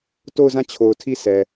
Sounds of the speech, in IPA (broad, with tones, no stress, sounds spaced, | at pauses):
t o˦˨ ʊ̯ z ã˦˨ t͡ɕʰ o˨ ʊ̯ tʰ i˦˨ s ɛ˨